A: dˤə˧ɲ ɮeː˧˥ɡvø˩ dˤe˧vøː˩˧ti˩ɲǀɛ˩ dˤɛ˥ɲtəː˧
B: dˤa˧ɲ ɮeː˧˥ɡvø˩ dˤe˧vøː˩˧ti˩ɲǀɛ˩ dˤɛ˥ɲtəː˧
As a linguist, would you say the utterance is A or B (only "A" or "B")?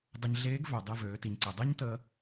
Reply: A